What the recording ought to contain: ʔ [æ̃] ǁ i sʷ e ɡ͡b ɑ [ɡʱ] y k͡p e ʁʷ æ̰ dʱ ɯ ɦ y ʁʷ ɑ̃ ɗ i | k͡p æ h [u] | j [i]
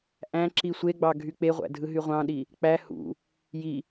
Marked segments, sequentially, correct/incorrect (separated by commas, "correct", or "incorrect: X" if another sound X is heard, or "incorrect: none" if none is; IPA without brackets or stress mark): correct, correct, incorrect: ṵ, correct